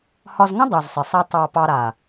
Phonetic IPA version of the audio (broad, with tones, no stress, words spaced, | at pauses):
hɒ˧zŋə̃˦ dˤu˨zsˤɪ˨sˤa˦ tˤɑ˧ pɑ˧ɾa˨